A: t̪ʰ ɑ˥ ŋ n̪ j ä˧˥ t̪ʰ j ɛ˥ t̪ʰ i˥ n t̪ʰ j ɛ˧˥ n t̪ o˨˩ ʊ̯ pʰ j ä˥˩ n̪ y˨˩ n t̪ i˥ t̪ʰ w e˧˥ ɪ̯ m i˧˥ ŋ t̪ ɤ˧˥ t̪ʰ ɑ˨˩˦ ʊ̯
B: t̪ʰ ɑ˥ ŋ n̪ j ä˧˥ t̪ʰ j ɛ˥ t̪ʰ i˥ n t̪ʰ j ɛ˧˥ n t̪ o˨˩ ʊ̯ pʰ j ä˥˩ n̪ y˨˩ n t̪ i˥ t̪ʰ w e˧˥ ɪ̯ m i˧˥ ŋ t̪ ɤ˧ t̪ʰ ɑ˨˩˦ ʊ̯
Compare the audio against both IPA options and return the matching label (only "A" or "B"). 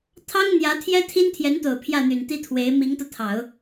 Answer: B